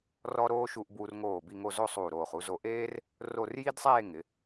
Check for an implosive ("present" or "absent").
absent